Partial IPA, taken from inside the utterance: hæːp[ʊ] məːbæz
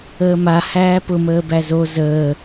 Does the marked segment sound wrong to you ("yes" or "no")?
no